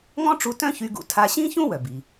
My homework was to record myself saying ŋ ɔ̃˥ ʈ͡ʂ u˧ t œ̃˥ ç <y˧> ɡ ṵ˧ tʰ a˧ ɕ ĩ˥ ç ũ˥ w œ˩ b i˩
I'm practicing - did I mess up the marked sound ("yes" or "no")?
no